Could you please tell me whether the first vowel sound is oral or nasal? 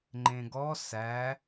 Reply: nasal